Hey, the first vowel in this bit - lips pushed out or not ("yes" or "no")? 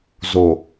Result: yes